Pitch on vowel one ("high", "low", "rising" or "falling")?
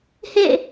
falling